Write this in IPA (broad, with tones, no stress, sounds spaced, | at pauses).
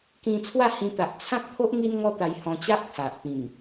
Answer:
k ĩ˧ t͡sʰ w a˥˧ h ĩ˧ t̪ a˨ ʔ t͡sʰ ã˦ k̚ pʰ o˦ ʔ ŋ i˦ n ŋ ɔ˦ t̪ a˧ j h ɔ̃˧ t͡ɕ a˦ ʔ t̪ʰ a˨ ʔ p ĩ˨˩ ŋ